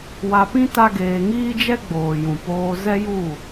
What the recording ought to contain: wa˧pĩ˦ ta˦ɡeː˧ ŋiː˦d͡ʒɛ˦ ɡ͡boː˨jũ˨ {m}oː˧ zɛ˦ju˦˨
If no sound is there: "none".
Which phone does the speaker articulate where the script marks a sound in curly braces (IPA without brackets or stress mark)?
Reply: p